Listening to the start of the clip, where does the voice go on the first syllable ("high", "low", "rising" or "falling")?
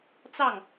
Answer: falling